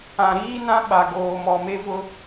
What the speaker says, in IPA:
ã˨ ɾ iː˦ n ã˦ ɓ a˨ ɡ oː˨ m ɔ˨ m e˦ v ʊ˦

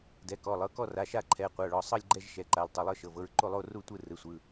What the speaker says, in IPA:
d ɛ˩˧˩ k ɔ˩˧˩ lˠ ɤ˩˧˩ k ɔ˦˨ r a˩˧˩ ʃ a˦˨ ǃʰ ɛ˩˧˩ qʷ a˩˧˩ ɭ ɔ˩˧˩ sˤ ɤ˦˨ lʲ ɡ͡ǃ ɛ˦˨ ʒ ʃ ɛ˩˧˩ ǃ a˩˧˩ l tˤ ɤ˩˧˩ lˠ ɤ˦˨ ʃ ɤ˩˧˩ v ɤ˦˨ ɹ ǃ o˦˨ lˠ o˦˨ r u˦˨ tʷ ɯ˦˨ r ɯ˩˧˩ sʷ ɯ˩˧˩

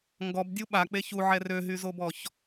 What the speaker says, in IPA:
ŋ ɡ ɔ b dʲ u ɓ a k͡p e ç u ʕ ɛ r ø ɦ y z o b ɔ ç

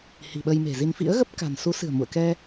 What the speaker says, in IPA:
h i̤˨˩ ɓ ə˧ j m e̤˨˩ z i˧ n f ḭ˧˥ ə̯ ɣ ə˦˥ p̚ k a̤˨˩ n s u˨˦ s ɨ̤˨˩ ə̯ m ṵ˧˨ ə̯ k ɛ˧

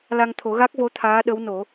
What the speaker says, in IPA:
l a˧ ŋ t̪ʰ o˨˩˦ ɣ a˦˥ k̚ v o˧˥ t̪ʰ aː˧˥ ɗ ə˧˥ w n o˨˩˦

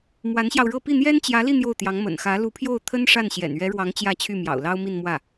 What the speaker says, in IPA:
m w a˧˥ n ɕ j ɑ˧ ʊ̯ ɻ ɤ˥˧ p i˥˩ n̪ j ɛ˥ n t͡ɕ j ä˧˥ l i˥˧ n̪ j o˥˩ ʊ̯ t̪ j ɑ˧˥ ŋ m ə̰˨˩ n x ä˧˥ l u˧˥ pʰ j o˥˩ ʊ̯ t̪ʰ ə˥ n ʂ a˥˩ n ɕ j ɛ̰˨˩ n ɥ ɛ˧˥ ɻ w ɑ˧˥ ŋ t͡ɕ j ä˥˧ t͡ɕʰ y˥˩ m j ɑ̰˨˩ ʊ̯ l ɑ˥ ʊ̯ m i˥˧ n m w ä˥˩

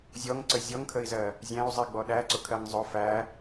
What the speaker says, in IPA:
zʲ ɔ ŋ ǀ ə zʲ ɔ ŋ kʰ ə i̯ z ɜ | zʲ æ̃ u̯ zˤ i ɡ͡b ɔ ɗ æ ǀ ʊ kʰ ɜ ŋ zˤ ʊ f æ

